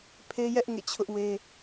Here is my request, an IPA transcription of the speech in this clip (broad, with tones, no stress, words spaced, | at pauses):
pʰe˦jɛ˦ʔ ŋḛ˦˨t͡ɕʰʊ˦ʔwe˦